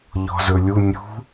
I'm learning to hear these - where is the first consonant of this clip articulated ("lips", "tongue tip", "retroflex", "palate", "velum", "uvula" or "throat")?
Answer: palate